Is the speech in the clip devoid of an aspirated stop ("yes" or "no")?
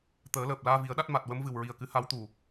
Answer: yes